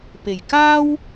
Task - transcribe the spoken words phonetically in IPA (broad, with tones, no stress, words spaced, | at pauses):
pe˨˩jkaː˥w